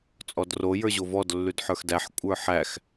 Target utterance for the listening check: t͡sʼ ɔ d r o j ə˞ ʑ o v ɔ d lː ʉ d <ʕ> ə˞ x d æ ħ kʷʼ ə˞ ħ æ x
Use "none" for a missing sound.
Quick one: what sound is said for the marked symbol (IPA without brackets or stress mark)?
ħ